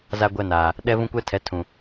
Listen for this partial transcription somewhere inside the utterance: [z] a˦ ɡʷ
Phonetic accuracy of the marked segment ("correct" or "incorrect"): correct